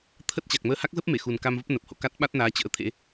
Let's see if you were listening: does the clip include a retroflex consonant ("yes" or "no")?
no